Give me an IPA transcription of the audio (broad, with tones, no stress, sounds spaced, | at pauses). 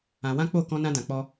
ã˧ w ã˦ k͡p o˦˨ k ɔ̃˧ n ã˧ d ã˨ k͡p ɔ˧